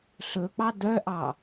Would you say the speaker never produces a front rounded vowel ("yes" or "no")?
no